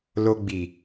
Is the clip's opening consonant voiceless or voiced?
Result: voiced